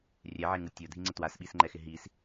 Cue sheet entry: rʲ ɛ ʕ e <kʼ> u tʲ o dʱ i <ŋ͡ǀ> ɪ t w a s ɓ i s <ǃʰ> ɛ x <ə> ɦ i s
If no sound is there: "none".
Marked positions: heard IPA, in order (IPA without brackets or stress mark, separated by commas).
ŋ, ŋ͡ǀ, ŋ͡ǃ, ɪ